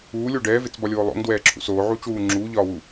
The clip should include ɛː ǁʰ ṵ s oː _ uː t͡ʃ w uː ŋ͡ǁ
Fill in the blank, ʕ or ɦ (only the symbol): ʕ